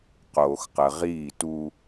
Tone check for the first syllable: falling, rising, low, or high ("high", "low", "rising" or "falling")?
low